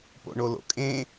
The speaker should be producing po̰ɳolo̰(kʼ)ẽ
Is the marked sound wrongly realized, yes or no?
no